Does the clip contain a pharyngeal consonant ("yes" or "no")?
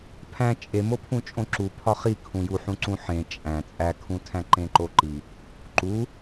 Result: yes